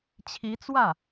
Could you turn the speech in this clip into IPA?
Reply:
t͡ɕʰi˧˥t͡swä˥˩

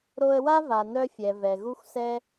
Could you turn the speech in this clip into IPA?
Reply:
ɾo˧ə̯wa˦va˨ nœ˧fʲɛ˨ vɛ˨ ɣu˦xʷsɛ˦

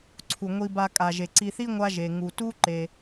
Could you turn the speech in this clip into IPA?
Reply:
ǀʰu˩ŋʷi˨ba˨ kʼa˩ʒe˩ǀi˨θi˥ ŋʷa˦ʒe˩ ŋu˩tu˦ǃe˩

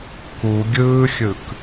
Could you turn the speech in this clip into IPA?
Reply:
ku ɡʲɯːxʲɯk

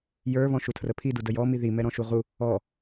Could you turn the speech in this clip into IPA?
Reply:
jə˞ βɔ̃ʃutʰrəpʰi dudəjɔ miði mɛɾɔ̃ʃuʁu | ɔ

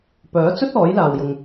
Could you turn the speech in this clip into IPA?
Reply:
pœː˨˥t͡sɵ˥t̚ ɔː˨˥jlaː˨wjʊ˨ŋ

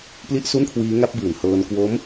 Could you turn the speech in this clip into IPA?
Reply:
pli˥˩ʔ su˥˩nkʰwiː˦˥ŋa˦˥p̚bɯː˨˩n hɤː˧n kwo˦˥m

